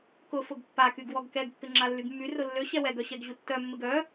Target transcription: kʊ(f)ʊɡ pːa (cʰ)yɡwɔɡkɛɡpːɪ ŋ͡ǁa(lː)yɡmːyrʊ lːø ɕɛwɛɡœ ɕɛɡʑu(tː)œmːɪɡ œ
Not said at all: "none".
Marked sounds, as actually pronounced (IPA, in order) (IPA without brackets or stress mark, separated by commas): f, k, lː, tː